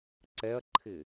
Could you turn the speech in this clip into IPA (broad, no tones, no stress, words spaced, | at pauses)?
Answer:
ǀɛɐ̯ǃʰɪ